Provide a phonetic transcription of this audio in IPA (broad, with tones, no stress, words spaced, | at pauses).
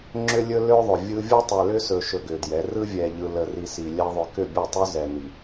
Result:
ŋ͡ǁʏ˦lʲɵ˦lø˦ ðˤʏ˨vʲɯ˦ vʲɯ˦tˤɛ˨ lʏ˦sɵ˨ ʃɵ˨ ɡʏ˨djɛ˨˦ rɯ˦vʲɛ˨ʎɯ˨ lə˨ri˨ si˨lʲɛ˦ ðˤʏ˨kʏ˦˨bʲɯ˦˨tˤɵ˦ zɛ˨ni˨